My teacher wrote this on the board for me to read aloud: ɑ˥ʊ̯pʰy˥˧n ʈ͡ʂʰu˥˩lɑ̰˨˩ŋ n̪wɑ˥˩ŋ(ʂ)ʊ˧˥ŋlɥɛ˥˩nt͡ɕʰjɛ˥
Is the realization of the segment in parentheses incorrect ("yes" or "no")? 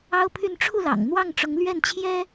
yes